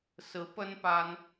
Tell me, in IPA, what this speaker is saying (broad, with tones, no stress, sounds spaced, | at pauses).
s ɹ̩˧˥ p ə˥ n p a˥ n